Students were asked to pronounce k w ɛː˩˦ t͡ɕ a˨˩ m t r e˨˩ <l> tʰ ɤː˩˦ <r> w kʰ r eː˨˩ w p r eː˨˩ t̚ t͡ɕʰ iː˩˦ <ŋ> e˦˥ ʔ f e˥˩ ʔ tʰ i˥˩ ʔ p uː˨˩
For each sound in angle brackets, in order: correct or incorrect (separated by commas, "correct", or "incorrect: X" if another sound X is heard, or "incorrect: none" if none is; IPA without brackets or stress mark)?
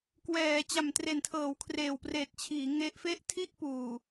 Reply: incorrect: n, incorrect: none, correct